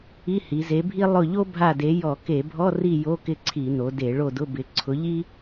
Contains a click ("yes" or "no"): yes